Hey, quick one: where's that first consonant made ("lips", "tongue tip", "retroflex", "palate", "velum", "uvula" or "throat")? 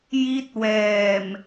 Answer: palate